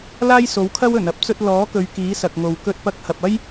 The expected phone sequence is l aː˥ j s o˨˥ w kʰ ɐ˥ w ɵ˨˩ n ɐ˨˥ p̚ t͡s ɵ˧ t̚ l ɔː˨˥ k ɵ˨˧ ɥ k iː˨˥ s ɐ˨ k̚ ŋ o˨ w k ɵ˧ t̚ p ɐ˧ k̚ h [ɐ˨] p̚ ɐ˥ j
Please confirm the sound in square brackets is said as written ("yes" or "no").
yes